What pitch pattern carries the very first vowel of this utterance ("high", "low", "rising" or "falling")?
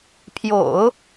low